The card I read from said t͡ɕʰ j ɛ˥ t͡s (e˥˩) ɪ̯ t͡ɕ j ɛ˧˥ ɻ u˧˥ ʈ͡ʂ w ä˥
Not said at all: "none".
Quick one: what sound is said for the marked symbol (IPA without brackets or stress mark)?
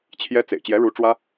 ḛ˨˩